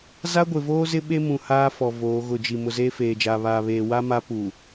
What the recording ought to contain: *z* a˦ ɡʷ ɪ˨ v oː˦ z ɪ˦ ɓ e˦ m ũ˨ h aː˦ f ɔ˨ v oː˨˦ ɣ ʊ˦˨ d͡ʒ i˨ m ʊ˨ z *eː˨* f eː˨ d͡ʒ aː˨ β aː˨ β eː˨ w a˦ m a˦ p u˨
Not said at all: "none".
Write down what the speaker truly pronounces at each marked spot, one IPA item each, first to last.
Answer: z, eː˦

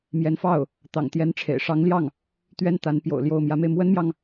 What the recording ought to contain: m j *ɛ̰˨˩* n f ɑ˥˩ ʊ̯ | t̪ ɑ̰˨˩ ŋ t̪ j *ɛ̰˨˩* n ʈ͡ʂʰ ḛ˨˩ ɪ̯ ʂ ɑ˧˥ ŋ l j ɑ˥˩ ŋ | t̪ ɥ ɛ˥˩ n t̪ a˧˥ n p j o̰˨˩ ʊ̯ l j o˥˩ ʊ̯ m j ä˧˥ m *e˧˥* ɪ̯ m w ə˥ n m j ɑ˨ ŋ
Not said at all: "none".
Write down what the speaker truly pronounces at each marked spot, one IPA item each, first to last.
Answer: ɛ˧˥, ɛ˧˥, e˧

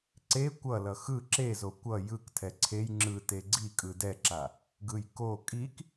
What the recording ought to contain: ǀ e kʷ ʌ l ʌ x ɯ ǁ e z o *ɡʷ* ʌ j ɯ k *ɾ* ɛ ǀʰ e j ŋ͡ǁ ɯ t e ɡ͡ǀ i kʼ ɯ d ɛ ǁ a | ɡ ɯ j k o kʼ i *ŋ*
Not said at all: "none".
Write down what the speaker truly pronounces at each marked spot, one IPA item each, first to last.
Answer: kʷ, tʰ, k

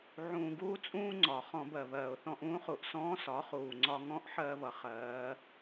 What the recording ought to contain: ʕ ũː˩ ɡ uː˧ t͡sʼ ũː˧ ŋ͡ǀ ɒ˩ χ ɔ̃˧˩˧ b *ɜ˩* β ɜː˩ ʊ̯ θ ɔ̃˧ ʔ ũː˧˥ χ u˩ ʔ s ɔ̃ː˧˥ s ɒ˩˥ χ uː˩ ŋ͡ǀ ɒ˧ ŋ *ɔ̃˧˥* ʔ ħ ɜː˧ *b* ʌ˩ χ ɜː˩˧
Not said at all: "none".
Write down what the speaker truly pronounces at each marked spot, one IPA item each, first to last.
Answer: ɜ˩, ɔ̃˧˥, β

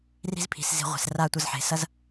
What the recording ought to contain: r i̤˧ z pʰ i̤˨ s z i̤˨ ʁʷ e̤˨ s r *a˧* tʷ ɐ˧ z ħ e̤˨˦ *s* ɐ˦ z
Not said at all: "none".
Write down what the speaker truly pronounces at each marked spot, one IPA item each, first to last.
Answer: a˧, s

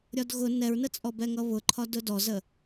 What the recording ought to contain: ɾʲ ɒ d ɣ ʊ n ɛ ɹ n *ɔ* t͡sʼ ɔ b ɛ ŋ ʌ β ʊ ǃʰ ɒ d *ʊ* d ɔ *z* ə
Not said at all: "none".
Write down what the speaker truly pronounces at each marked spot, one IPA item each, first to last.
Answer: ə, ʊ, z

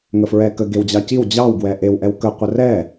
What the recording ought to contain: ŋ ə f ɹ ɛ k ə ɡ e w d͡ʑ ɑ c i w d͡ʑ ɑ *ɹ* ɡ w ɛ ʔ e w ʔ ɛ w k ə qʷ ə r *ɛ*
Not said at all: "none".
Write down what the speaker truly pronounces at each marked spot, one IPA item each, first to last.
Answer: w, ɛ

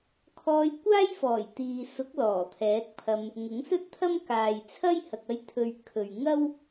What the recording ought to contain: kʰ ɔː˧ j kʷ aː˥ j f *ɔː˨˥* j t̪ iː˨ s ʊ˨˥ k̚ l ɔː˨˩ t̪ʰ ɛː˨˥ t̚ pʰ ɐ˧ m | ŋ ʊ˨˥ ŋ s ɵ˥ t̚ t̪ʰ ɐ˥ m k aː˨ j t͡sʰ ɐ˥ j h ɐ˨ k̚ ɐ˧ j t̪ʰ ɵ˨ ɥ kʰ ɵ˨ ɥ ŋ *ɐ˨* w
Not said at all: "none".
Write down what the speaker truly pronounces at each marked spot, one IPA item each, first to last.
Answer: ɔː˨˩, ɐ˥

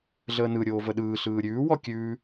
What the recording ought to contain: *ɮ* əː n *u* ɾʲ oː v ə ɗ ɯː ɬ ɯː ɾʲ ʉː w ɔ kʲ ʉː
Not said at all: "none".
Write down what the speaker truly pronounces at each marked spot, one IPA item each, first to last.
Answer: ɮ, ɯ

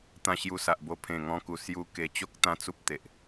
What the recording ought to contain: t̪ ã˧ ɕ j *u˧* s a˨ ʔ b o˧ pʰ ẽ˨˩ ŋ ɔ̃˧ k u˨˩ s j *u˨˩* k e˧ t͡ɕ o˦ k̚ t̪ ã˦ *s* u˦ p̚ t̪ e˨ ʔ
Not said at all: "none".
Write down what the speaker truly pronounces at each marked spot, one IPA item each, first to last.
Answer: u˧, u˧, t͡s

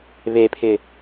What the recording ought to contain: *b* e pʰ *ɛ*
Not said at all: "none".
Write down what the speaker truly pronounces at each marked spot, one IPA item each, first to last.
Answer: β, ɪ

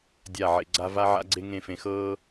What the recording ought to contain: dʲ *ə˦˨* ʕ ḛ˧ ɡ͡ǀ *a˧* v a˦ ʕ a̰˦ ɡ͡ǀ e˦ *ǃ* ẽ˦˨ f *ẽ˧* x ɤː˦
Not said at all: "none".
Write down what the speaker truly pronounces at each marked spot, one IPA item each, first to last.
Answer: a˦˨, a˦, ŋ, ẽ˧

